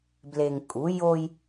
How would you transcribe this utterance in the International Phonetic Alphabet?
b l e˨ ŋ kʼ u˨˦ j o˦ j

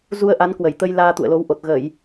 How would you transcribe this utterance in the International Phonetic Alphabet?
z u˧ ə̯ ʔ a˨˦ n k w ə˧˩ j t̪ ə˧ j l aː˧ t̪ ṵ˧˨ ə̯ l o˨˦ w ʔ o˨˩ t̚ ɣ ə˧˩˨ j

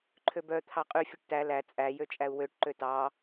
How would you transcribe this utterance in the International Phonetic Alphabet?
ǃʰ ø b œ t̪ʰ ɑ qʼ y fʲ ʉ ʈ t æ l æ t͡sʼ æ j ø t͡ʃʼ æ u̯ w ø ʈ ǃ ø t ɑ

